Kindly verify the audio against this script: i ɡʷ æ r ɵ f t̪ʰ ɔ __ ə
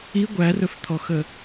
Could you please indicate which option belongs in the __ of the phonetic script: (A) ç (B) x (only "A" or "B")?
B